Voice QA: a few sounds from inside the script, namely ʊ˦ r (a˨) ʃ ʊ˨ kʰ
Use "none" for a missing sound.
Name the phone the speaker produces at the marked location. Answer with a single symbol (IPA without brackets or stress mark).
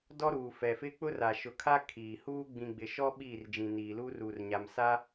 a˨